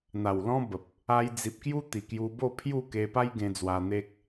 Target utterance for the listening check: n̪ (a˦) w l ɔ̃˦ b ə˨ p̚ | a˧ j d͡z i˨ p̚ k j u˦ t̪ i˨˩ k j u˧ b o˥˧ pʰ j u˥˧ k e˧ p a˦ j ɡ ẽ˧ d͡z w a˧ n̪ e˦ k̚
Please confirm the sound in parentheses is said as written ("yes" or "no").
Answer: no